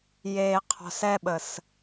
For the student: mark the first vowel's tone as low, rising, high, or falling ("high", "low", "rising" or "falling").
low